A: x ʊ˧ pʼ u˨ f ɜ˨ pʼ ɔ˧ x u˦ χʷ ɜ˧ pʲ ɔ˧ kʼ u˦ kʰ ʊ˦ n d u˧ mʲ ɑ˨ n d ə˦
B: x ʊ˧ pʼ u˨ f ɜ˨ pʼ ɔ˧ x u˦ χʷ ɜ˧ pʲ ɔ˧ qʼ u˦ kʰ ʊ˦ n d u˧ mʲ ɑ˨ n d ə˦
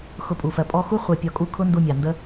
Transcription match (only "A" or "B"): A